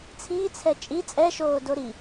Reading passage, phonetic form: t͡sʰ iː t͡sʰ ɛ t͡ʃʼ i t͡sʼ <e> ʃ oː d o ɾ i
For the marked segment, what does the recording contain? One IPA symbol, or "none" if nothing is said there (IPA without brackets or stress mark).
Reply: ɛ